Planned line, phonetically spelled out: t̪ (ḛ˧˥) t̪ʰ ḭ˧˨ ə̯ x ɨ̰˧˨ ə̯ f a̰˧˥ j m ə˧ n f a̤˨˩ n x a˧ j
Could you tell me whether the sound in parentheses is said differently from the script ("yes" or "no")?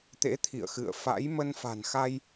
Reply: no